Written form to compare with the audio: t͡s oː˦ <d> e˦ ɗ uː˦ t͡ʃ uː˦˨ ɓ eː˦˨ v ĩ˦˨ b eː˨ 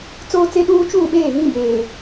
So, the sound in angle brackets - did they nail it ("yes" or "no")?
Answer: no